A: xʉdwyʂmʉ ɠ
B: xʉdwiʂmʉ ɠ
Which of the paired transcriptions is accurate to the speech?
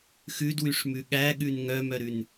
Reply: A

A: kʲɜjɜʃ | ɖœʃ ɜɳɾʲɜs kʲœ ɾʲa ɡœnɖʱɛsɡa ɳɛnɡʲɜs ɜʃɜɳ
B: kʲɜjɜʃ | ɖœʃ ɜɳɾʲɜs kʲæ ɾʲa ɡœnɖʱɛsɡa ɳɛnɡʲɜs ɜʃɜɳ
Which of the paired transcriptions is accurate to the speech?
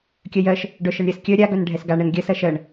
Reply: A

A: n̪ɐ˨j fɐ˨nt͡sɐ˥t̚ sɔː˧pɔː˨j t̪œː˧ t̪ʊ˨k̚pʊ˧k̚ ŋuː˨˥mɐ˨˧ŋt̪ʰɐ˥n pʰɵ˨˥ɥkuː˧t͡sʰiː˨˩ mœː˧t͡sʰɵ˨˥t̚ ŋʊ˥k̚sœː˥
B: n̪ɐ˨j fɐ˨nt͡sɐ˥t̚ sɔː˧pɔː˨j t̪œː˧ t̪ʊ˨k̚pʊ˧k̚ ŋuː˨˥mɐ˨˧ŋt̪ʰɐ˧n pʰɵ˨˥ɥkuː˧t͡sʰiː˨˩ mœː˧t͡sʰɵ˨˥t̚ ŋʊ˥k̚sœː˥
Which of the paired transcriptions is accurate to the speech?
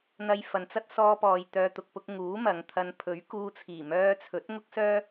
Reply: B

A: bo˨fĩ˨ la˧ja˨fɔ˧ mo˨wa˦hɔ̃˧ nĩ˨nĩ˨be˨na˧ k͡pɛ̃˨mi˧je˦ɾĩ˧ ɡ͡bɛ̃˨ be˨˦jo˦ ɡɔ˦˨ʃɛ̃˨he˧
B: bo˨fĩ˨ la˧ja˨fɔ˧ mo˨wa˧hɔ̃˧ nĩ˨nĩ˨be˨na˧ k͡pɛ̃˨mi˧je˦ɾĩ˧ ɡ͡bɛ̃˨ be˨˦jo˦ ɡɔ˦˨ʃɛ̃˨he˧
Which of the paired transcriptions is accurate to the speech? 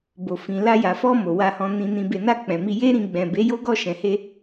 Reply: B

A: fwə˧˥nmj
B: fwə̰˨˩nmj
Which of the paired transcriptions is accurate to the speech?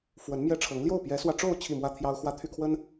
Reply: A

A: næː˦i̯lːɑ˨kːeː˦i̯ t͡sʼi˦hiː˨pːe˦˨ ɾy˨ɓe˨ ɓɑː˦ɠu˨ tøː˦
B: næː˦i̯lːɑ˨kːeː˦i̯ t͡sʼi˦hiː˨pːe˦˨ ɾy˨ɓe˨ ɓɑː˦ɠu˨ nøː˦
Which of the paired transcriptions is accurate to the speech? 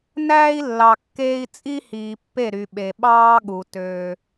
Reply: A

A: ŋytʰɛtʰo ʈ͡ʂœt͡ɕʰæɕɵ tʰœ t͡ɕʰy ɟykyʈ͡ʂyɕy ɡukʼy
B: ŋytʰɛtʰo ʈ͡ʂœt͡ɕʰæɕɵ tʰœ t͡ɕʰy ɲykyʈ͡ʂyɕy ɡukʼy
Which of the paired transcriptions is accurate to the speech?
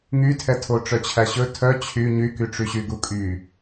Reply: B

